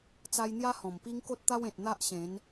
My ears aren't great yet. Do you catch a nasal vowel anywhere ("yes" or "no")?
yes